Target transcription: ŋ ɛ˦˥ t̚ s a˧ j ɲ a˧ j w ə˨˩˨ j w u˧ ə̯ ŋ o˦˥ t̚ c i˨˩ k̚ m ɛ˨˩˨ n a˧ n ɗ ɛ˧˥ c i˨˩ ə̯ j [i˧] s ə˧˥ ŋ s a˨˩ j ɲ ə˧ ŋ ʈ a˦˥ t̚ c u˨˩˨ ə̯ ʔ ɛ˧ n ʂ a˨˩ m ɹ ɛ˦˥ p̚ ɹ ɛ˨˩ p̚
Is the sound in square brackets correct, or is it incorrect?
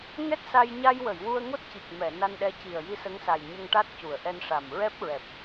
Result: correct